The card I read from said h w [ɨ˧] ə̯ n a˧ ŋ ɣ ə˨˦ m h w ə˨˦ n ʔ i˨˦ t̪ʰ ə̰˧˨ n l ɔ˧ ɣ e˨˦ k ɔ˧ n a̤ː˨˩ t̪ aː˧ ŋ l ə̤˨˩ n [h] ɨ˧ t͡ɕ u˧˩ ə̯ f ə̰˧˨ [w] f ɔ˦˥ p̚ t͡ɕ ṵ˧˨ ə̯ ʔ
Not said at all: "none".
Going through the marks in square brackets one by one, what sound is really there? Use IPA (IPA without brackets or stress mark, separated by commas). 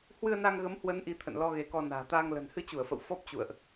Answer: ɨ˧, h, w